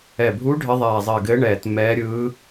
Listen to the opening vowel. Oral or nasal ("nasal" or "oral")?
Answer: oral